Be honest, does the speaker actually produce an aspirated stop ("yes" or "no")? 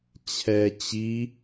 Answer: yes